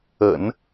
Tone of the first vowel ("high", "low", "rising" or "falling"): low